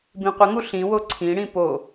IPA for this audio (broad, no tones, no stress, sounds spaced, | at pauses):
b ĩ qʷ ə ŋ u ɬ ĩ w o ǀʰ ĩ ɽ ĩ p o